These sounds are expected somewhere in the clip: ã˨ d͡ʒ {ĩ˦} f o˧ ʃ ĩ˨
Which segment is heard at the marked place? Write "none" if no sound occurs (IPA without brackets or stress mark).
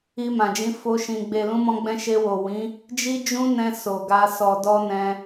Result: ĩ˨˦